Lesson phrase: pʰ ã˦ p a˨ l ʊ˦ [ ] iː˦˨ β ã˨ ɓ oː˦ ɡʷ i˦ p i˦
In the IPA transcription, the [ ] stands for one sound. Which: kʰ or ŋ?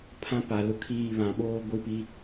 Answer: kʰ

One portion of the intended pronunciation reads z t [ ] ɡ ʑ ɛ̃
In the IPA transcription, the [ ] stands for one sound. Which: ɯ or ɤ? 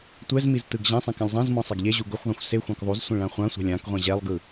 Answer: ɯ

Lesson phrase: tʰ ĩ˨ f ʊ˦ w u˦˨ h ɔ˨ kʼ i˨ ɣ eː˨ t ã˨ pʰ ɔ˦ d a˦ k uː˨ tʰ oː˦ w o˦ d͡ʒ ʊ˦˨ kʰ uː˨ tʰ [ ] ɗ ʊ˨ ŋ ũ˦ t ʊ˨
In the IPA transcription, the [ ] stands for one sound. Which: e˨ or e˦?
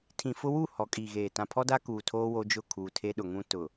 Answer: e˦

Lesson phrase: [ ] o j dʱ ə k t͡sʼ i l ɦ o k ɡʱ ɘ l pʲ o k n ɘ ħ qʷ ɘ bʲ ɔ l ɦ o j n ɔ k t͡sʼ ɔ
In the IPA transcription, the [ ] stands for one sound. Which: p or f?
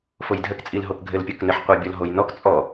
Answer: f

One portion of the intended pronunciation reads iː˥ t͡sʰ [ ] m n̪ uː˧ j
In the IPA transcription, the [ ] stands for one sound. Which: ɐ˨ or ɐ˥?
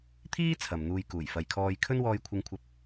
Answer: ɐ˨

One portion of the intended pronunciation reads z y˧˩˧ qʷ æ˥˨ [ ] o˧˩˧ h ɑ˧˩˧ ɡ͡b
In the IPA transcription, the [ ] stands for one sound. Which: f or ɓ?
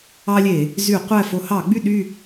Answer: f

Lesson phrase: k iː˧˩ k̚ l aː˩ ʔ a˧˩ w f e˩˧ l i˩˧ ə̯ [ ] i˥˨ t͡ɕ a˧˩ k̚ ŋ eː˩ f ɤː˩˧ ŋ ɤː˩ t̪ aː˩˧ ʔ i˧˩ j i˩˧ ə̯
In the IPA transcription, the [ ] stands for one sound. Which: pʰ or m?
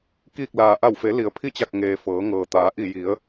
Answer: pʰ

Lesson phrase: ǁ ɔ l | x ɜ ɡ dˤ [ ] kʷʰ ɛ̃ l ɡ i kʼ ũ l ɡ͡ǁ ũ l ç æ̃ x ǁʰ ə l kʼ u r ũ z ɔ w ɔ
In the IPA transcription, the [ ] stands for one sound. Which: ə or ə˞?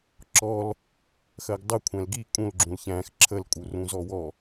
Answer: ə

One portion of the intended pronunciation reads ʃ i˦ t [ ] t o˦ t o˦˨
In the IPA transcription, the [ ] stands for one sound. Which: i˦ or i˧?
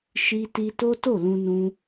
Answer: i˦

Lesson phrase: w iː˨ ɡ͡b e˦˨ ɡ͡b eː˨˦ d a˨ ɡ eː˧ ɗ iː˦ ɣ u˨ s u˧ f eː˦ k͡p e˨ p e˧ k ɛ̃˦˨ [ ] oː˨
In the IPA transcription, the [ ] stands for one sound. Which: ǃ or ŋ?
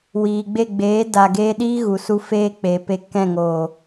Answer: ŋ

